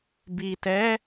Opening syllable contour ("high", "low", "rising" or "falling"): low